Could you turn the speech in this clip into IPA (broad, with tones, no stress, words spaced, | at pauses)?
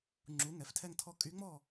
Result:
ŋ͡ǁu˩˥ ŋɛ˩˥ftʰɛ˥˨ŋtʰɔ˥˨ kʼy˧˥ŋ͡mɔ˥˨